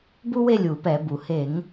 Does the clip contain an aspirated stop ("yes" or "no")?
no